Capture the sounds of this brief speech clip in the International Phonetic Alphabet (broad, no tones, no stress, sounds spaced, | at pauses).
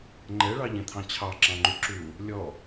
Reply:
ŋ͡ǃ ɛ ɭ ɑ ʎ ɛ̃ t̪ʰ ɑ̃ t͡ɕʰ ɑ ǁ ɑ̃ ŋ͡ǃ u ǁ u | lʲ ɔ